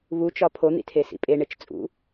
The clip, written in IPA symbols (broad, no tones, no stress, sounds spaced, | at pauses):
β u t͡ʃ ɒ pʰ o n̪ ḭ tʰ e s ḭ pʼ e ɳ e t͡ʃ t͡sʼ ṵ